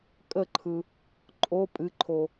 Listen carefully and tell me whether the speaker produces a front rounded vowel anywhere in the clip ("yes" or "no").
no